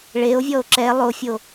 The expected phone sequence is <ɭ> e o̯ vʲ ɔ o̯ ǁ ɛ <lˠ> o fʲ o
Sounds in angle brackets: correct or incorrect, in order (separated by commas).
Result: correct, correct